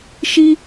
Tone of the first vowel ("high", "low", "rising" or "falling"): high